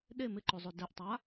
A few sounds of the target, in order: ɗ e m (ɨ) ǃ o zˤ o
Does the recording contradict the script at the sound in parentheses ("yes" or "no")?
yes